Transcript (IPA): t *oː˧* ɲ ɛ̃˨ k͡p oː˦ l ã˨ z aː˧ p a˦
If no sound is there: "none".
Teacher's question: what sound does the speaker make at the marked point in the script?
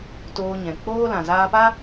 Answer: oː˧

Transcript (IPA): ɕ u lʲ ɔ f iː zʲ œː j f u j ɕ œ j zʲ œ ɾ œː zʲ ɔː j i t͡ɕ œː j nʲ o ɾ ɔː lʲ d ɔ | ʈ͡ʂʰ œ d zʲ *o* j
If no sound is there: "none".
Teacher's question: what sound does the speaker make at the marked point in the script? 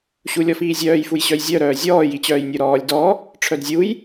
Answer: u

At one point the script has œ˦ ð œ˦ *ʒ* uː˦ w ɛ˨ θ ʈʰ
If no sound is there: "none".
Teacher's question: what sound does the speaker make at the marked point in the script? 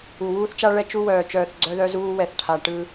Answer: z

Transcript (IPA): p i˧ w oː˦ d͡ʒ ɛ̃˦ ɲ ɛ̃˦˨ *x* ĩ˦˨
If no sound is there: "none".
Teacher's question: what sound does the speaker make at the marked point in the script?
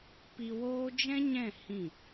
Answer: h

